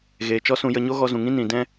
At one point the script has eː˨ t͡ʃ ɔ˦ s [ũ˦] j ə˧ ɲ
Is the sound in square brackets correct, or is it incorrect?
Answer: incorrect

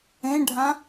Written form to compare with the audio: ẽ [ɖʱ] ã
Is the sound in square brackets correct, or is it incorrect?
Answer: correct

